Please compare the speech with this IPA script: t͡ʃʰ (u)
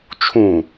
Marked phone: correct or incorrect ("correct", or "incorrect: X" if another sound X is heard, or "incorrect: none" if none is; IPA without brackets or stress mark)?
incorrect: ũ